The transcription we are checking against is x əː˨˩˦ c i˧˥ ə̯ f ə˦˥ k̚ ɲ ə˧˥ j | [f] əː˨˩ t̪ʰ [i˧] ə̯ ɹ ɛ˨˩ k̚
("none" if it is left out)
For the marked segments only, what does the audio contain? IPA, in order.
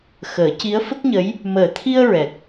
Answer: m, i˧

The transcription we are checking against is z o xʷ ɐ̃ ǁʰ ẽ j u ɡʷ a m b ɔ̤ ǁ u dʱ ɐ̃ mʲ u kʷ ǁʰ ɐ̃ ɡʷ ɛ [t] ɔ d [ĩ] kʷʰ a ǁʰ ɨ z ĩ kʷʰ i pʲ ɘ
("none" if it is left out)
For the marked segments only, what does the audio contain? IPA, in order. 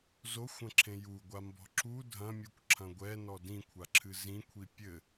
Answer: n, ĩ

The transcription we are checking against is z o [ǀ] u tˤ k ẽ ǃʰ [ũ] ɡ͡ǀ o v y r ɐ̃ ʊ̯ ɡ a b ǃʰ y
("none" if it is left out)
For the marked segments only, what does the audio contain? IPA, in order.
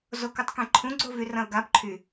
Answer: k, ũ

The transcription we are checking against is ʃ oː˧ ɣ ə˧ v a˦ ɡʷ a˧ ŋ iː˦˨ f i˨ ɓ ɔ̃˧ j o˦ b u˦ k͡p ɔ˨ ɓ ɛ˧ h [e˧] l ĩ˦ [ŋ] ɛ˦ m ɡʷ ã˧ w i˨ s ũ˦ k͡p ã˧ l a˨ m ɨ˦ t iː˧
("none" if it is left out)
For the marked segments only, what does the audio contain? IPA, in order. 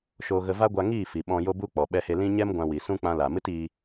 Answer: e˧, ɲ

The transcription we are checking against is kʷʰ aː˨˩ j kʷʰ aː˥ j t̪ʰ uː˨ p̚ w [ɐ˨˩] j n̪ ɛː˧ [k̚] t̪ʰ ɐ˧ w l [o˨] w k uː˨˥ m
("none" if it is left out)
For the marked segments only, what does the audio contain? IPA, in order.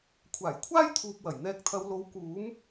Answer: ɐ˨˩, k̚, o˨˥

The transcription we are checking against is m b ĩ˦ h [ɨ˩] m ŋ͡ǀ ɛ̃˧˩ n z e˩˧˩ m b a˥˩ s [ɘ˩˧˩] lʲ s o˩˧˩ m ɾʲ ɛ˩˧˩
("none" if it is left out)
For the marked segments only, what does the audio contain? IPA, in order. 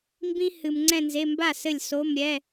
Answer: ɨ˩, ɘ˧˩

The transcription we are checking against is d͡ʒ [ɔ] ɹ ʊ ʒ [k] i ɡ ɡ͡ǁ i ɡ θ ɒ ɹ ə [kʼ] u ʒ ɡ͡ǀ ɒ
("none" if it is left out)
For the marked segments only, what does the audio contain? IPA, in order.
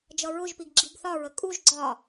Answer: ʌ, p, kʼ

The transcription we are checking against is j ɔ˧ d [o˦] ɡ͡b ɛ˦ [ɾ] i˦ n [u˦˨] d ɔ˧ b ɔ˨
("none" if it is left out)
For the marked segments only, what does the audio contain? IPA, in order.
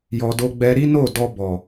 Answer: o˦, ɾ, o˦˨

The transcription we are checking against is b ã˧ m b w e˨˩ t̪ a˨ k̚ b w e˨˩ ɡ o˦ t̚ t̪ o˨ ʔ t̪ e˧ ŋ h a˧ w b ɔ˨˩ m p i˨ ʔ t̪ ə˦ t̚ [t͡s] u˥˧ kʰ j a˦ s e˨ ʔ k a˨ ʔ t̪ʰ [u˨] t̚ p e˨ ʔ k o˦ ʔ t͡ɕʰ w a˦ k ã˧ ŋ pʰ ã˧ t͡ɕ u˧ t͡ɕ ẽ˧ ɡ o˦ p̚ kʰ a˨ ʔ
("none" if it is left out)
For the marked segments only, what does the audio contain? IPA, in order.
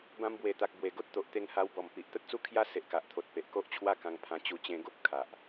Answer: t͡s, o˨

